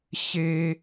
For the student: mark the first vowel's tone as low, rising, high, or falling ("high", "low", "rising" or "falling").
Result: high